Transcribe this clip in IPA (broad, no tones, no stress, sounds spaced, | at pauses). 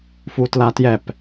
f u t l a t j ɛ p